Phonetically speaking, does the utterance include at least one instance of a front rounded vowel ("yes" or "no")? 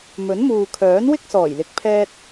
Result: yes